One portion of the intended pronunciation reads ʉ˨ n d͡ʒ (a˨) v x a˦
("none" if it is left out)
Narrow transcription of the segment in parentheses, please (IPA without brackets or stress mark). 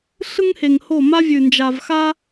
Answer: a˨